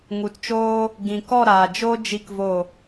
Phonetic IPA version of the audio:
ŋu˨tt͡ʃoː˦ | ɡĩ˨kɔ˦˨ ɾaː˨d͡ʒo˦ d͡ʒi˦kvo˦˨

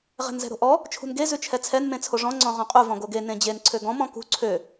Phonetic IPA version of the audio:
ʁɛ̤nzɛ̤ɾo̤ʔɔ | t͡ʃʰṳnɡe zʉt͡ʃʰɛt͡sʰɛn mẽt͡sʰoʐɔ̃ ŋ͡ǀɔ̃ʁɔ̃qʼu vɔ̃ɡoɡe nẽd͡ʑen ǀʰøɡɔ̃ mɔ̃kṳ ǀʰø

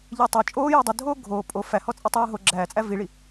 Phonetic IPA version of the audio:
ʎetˤo t͡ʃʼoːjo dˤədʱoː ɡʱoː pʼo fæhɔt͡sʼi tˤɜːɦo ɡ͡ǁæːt͡sʼæ viɭi

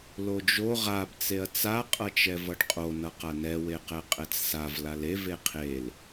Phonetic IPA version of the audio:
lod͡ʒo ʁab t͡seɐ̯t͡sa qʼʌt͡ʃɛvʌɖqʼo nʌqanɛ weqɛqʼɛt͡ssav lalev eqʰel

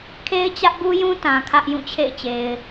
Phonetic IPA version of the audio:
kʰe˦ɪ̯t͡ɕä˦ʔbu˦jũ˦ tã˨kʰä˦ʔ jũ˦˨t͡ɕʰḛ˦˨ɪ̯t͡ɕe˨ɪ̯

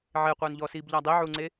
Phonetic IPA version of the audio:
ʕeqʷœːnʎɔːsiːb ʎadˤiʕuŋ͡ǀe

